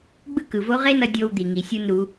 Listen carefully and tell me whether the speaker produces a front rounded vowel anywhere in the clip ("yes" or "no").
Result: no